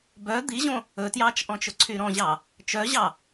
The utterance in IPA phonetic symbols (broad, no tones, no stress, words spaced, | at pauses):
bœ d̪iʑõ | ɵtjɑːt͡ʃʔɔ̃t͡ʃɵ ǀʰyɾɔ̃ʑɑ | t͡ʃœʑɑ